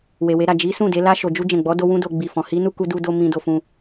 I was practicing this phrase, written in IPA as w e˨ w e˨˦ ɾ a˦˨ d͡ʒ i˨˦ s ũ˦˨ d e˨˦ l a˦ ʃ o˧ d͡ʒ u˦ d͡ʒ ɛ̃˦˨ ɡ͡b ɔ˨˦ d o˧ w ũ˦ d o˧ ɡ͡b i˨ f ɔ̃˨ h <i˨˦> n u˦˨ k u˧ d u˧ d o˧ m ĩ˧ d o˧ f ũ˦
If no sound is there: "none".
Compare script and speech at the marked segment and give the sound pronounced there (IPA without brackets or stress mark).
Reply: i˨˦